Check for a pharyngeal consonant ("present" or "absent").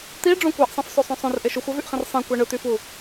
absent